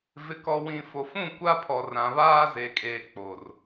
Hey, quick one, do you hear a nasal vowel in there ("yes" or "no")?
yes